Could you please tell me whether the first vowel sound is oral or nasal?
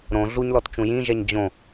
nasal